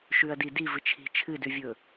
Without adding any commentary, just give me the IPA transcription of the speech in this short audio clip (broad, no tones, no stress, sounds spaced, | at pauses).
ʃ ʉ ɐ̯ d i d i v ɨ t͡ʃʰ i̤ t͡ʃʰ ɨ d ʉ vʲ ɵ